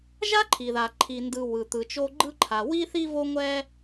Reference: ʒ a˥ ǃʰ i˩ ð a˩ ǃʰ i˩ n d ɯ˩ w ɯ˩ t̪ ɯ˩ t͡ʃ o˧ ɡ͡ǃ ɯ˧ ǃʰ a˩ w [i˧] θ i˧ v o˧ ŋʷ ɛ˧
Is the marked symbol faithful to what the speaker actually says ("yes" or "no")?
yes